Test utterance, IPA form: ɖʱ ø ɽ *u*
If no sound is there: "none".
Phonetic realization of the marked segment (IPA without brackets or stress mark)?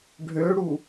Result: u